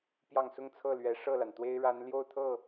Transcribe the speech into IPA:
pjɑ˥˧ŋ sʊ˥˧ŋt͡sʰɤ˥˩lɥɛ˧˥ ʂɤ˥˩la˩nt̪we˥ɪ̯ ɻa˧˥n ljo˥˧ʊ̯t̪ʰɤ˥˩

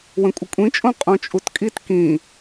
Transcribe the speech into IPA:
wə̃kʷʼəkʷʼĩt͡ʃʼõ qʼõt͡ʃʼutkʼit kĩ

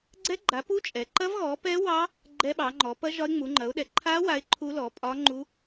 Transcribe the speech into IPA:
ɡ͡ǀɛ˦˥ɡ͡ǃa˨˦pu˦˥ t͡ʃʼɛ˨˦ ǃɐ˦˥vɣɔ˨˦pɛ˦˥ wɑ˦˥ | ɡ͡ǃɛ˦˥ɓɑ˨˦ŋ͡ǃɔ˨˦ pɐ˦˥ ʒɒ˦˥ɪ̯ŋ͡mu˨˦ŋ͡ǃɐ˨˦ʊ̯ɗɛ˨˦ ǃʰa˦˥ wa˦˥ɪ̯ǃʰu˦˥lɔ˨˦ pʼɒ˦˥ŋ͡ǃu˦˥

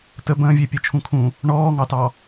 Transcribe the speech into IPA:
tə bə̃ːvʲe pʲet͡ʃʰũkʰũ | ɳɔːŋɑtɑ

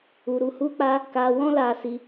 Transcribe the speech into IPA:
u˧ ɾu˧hu˦k͡pa˦ | ka˧wɔ̃˦la˧ si˦

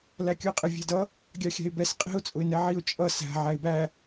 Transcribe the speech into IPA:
lækʲʊɪ̯qʼɪ vʲæ̤dʌ | ɡʲɑxʲæ̤ɪ̯bɛs qʼi̤ʊ̯ t͡sʼʊɪ̯nɛʕiʊ̯ t͡ʃʼʌ sæ̤ ʕæɪ̯bæ

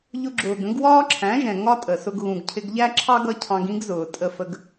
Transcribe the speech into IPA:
ʎʊ˧ɡ͡ǁʊː˨ɡə̃˨˦ɡ wɒː˦ǁʰæ̃˨˦ʒɛ̃˨ ŋɒ˦tʼə˨sʊ˧ɡ ɣũ˨ɡcʰɪ˧ɡʎæ˦ ǁʰɑ˦ɡʌ˧ cʰɑ̃˧ɡĩ˦ɡzʊː˨ tʼə˧fə˧ɡ

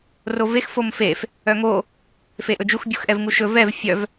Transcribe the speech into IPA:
rovex fomfef | œŋo | feʔɵd͡ʒux bʲuxʔɛvŋuʃɵ vɛv fʲœv

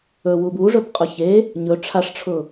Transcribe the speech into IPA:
ɵwub uʐɵbqʼʊ çe | ɲɵ ʈ͡ʂʰaʂʈ͡ʂʰʊ

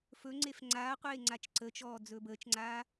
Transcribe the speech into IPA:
fɵ ŋ͡ǀefŋ͡ǀaːqʷeː ŋ͡ǀat͡ʃǀət͡ʃɔː d͡zɵːbəːt͡ʃŋ͡ǀaː

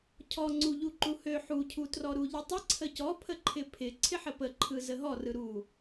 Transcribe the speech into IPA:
cʰɔŋ͡ǀuʎu ǃuhø ħucʰutrɔ ɾuʎɯtˤɪ ǀʰəcɔpʰə ǃʰɪpʰɪ ǀʰɪħəpəǃʰɯ zəɦɔrɯ ɾu

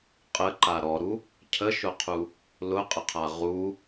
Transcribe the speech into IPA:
qʼəǃa ɾɔɾu | cʰəʃʊqʰu | lʊqʼəqʰa ʁu

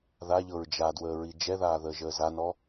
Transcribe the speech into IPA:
ðaʎɤɹ d͡ʒadwəːɹi d͡ʒɛðaːðəːʒəː zanɔ

